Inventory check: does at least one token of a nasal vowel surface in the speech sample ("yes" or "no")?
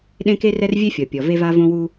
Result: yes